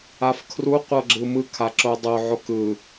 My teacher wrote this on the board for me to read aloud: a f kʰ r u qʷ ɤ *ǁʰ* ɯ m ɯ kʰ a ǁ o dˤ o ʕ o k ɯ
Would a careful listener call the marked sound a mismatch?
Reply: yes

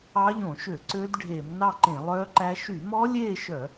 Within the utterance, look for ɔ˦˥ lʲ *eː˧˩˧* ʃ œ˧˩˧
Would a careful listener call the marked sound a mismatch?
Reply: yes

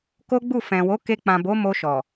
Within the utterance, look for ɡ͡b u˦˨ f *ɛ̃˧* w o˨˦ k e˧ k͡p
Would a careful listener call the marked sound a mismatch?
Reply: yes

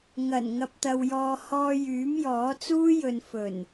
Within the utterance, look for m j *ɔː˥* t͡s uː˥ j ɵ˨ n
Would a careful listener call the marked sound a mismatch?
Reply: yes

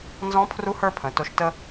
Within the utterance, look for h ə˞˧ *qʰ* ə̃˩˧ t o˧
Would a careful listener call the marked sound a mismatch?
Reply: yes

